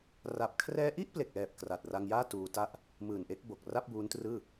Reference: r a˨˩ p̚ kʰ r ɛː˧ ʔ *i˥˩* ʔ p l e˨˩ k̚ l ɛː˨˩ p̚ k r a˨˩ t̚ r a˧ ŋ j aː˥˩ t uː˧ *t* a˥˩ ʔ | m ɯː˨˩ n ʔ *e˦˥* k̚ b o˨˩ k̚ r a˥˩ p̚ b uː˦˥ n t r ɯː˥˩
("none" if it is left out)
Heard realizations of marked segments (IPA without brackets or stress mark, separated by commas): i˥˩, t, e˦˥